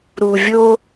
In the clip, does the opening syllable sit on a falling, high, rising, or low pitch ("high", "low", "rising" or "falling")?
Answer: low